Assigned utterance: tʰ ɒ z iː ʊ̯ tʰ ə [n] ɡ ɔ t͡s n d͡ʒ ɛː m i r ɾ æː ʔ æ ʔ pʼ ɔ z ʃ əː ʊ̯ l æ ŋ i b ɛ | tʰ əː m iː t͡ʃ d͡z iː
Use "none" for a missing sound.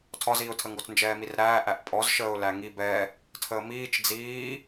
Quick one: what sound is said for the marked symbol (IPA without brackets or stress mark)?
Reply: ŋ